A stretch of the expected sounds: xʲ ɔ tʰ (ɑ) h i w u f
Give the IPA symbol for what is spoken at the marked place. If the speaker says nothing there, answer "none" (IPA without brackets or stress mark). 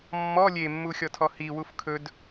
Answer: ɔ